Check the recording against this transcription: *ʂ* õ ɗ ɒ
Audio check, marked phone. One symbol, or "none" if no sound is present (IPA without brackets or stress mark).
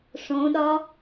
ʂ